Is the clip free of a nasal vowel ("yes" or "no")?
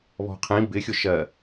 no